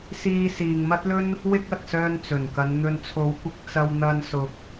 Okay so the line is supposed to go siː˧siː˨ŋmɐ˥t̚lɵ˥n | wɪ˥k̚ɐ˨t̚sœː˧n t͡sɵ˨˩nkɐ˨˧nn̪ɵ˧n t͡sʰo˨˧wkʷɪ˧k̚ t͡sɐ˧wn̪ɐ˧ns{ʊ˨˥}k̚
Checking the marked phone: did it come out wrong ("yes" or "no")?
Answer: no